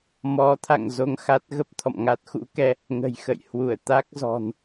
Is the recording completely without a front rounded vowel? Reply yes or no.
yes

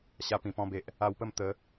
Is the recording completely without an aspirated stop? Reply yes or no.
yes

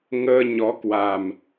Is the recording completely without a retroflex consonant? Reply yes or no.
yes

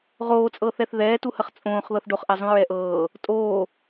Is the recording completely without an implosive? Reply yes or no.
yes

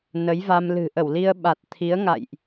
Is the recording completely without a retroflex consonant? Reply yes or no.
yes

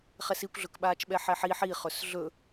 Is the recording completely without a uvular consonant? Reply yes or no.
no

